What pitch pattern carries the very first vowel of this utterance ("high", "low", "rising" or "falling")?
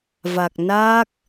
low